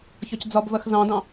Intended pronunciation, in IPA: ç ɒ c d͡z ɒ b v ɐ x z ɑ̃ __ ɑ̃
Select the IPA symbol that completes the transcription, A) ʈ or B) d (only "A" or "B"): B